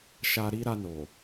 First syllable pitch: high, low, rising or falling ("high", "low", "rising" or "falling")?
low